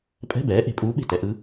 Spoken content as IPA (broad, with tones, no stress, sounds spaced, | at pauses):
pʼ ɛ̤˧˥˧ b ɛː˩˥ ʔ e̤˩˧ pʼ uː˧˥ ɓ e̤˥˩ t ɛ˩˧ ʔ ɯ˧˥